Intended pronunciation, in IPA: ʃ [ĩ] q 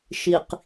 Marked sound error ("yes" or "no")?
yes